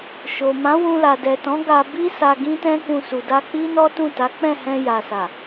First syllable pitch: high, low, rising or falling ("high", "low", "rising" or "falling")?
low